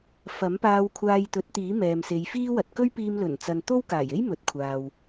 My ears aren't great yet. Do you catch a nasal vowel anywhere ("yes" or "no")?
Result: no